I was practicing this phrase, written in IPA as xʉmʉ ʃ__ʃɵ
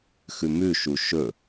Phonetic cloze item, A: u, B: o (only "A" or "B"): A